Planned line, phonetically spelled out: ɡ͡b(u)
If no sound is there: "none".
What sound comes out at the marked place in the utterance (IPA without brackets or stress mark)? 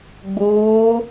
uː